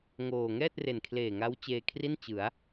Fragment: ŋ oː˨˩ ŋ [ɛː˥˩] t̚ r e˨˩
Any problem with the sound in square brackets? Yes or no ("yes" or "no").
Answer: no